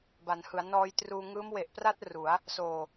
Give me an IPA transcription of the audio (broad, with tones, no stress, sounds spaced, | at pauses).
b a˩˦ n h ɯ˩˦ a̯ n ɔː˧ j t r uː˧ ŋ ɯː˦˥ m w e˨˩ ʔ p r a˥˩ t̚ r u˩˦ a̯ | s oː˨˩